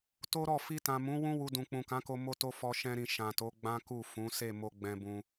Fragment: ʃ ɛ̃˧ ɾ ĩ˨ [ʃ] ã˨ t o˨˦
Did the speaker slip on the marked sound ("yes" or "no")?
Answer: no